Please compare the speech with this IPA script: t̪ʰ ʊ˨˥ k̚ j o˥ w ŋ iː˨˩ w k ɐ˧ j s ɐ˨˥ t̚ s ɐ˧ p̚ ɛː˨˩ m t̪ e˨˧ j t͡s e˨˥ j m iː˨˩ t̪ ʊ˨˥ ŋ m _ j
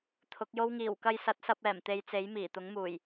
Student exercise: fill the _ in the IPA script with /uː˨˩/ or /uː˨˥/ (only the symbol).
uː˨˩